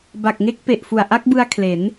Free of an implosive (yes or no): yes